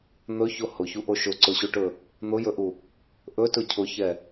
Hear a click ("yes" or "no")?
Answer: yes